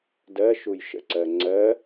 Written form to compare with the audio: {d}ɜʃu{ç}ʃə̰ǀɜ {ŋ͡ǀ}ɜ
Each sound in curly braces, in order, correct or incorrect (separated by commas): correct, incorrect, correct